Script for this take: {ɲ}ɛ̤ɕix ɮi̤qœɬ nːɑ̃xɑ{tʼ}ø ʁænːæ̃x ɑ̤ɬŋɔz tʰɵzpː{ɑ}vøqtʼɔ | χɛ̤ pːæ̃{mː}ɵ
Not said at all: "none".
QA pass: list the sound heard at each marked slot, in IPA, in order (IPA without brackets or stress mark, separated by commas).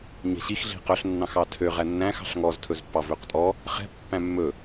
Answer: ɲ, tʰ, ɑ, mː